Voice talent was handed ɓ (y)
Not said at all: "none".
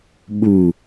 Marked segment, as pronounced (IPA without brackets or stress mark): u